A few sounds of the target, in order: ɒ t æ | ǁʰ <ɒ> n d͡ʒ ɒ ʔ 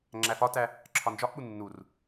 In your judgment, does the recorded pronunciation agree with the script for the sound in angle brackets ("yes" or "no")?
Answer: yes